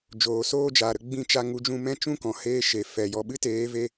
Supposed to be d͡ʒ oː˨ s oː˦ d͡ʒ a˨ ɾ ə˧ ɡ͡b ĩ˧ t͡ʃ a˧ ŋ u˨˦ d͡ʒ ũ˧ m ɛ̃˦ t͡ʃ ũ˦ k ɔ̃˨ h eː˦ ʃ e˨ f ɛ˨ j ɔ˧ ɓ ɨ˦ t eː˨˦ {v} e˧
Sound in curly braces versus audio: correct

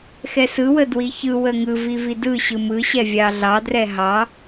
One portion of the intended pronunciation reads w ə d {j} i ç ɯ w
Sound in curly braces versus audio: incorrect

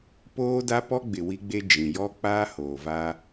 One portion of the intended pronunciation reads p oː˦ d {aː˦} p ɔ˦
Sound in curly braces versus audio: incorrect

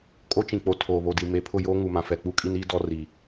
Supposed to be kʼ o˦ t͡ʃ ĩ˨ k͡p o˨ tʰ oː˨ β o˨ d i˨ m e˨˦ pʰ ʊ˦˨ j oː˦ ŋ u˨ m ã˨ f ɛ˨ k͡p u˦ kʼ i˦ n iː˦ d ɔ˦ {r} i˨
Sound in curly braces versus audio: correct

